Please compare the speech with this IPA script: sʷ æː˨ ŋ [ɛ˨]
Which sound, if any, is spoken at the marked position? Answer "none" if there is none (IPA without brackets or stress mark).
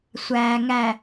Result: æ˨